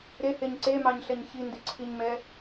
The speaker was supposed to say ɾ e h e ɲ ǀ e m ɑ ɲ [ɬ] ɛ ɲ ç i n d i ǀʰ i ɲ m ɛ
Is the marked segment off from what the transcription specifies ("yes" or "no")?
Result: no